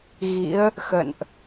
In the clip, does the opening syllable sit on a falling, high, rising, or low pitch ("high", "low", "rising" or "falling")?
rising